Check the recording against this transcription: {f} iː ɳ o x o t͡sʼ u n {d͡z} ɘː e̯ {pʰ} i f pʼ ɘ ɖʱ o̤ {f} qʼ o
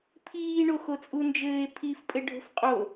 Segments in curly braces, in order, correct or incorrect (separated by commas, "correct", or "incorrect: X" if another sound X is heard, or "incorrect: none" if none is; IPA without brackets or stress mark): incorrect: pʰ, incorrect: d͡ʒ, correct, correct